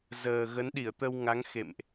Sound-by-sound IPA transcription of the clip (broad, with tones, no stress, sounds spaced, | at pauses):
z əː˨˩ ɣ ə˨˦ n ɗ i˧˩ ə̯ t̪ ə˧ w ŋ a˨˦ ŋ x ḛ˧˨ m ʔ